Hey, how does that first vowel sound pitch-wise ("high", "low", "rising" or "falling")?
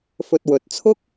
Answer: low